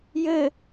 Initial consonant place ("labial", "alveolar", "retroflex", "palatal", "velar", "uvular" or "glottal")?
palatal